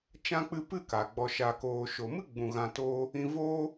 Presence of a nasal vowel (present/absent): present